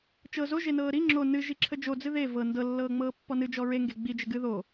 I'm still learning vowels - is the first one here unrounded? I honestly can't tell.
yes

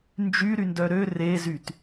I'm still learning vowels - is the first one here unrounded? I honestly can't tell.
no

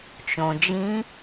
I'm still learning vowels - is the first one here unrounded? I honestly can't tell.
no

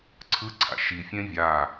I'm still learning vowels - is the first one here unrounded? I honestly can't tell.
yes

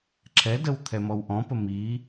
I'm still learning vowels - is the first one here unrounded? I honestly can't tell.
yes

